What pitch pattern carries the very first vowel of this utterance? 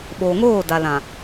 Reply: low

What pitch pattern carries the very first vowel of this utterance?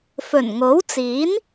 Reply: low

